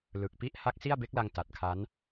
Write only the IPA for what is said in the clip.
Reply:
l ɯ˨˩ k̚ p i˦˥ ʔ h a˦˥ k̚ s i˥˩ a̯ b e˦˥ k̚ l a˧ ŋ t a˨˩ t̚ kʰ a˦˥ n

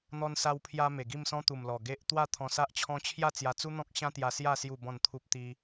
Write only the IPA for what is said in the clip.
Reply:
n̪ ɔ˧ n s a˧ w pʰ j a˧ m e˨˩ ɡ i˥˧ m s ɔ̃˦ t̪ u˨˩ m l ɔ˨˩ ɡ e˦ ʔ t̪ w a˥˧ t̪ʰ ɔ̃˧ s a˦ ʔ t͡ɕʰ ɔ̃˦ t͡ɕʰ j a˥˧ t͡s j a˧ t͡s u˦ n̪ ɔ̃˦ k̚ ɕ ã˦ t̪ j a˧ s j a˥˧ s j u˥˧ b ɔ̃˥˧ n t̪ʰ u˦ p̚ t̪ i˦

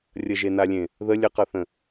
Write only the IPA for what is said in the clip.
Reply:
rʲ ə ʒ e n a lʲ ẽ | ð ə lʲ ə q ɤ θ ə̃

